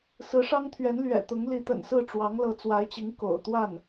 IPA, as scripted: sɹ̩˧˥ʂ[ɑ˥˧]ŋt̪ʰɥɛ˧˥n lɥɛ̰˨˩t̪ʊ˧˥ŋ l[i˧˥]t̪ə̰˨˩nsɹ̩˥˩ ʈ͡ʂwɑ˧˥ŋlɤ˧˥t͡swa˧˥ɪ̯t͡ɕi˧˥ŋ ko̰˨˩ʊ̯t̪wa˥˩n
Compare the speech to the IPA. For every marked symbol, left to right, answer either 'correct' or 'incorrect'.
incorrect, correct

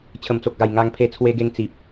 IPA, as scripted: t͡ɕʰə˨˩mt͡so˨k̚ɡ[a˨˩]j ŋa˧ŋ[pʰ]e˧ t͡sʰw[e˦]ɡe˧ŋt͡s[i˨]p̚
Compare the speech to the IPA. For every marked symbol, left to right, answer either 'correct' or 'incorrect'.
correct, correct, incorrect, correct

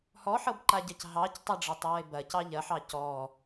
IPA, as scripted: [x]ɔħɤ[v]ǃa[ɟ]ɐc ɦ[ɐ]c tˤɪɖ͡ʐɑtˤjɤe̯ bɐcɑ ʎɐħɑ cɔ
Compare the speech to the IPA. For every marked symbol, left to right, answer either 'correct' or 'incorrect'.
incorrect, incorrect, correct, incorrect

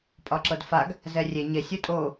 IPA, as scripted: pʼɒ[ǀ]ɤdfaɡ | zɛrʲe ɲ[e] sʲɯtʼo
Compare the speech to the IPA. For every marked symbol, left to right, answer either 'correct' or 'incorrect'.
incorrect, correct

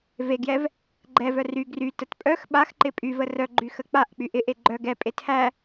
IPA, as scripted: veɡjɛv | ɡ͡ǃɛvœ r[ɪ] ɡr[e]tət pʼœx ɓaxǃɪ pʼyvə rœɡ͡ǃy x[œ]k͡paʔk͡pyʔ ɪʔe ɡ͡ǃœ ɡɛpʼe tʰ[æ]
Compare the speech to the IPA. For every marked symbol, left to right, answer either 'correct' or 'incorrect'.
incorrect, incorrect, incorrect, correct

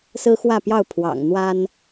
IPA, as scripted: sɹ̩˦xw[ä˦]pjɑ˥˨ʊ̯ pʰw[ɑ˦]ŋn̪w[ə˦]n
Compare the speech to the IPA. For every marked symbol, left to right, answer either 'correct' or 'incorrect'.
incorrect, incorrect, incorrect

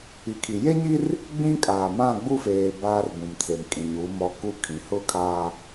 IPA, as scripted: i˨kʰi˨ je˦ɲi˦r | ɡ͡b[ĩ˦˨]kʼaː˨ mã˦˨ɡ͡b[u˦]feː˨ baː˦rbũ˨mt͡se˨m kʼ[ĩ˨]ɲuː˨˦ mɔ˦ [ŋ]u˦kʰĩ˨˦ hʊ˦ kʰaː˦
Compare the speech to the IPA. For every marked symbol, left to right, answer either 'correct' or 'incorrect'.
incorrect, correct, correct, incorrect

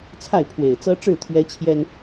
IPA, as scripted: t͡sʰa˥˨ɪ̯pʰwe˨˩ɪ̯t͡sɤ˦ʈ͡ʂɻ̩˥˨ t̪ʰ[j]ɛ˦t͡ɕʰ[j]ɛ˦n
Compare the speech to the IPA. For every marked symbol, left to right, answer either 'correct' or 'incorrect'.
incorrect, correct

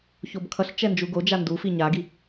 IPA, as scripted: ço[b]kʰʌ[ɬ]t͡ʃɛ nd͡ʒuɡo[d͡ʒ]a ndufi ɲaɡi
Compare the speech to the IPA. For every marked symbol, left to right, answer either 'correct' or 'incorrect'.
correct, correct, correct

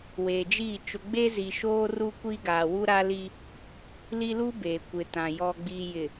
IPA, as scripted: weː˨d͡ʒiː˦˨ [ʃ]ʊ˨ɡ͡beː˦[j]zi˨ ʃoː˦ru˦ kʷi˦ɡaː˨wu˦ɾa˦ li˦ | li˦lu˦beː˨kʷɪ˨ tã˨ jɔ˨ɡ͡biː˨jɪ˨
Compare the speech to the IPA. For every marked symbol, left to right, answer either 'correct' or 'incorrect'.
incorrect, incorrect

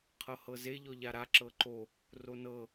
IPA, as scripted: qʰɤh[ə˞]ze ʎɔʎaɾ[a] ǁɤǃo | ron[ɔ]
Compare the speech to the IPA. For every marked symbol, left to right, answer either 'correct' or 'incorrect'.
incorrect, correct, incorrect

